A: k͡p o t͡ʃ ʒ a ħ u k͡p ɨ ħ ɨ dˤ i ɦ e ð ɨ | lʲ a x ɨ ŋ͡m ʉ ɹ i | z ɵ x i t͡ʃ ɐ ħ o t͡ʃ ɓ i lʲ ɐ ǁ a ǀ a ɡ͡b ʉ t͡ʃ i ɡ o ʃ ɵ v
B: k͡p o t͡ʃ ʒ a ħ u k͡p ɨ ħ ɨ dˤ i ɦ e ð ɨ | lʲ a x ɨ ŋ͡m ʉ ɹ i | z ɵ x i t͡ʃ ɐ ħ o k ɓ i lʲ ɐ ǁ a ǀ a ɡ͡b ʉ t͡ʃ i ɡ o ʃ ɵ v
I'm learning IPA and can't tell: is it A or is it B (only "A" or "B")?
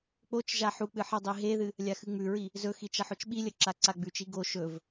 A